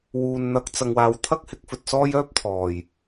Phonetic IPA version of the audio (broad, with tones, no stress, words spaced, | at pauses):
wuː˨n n̪ɐ˨˥k̚t͡sɐ˨ŋwaː˨w t̪ʰɐ˥k̚hɪ˨˥k̚ fɵ˨t̚sɔː˥jœː˥p̚t̪ʰɔː˨˩j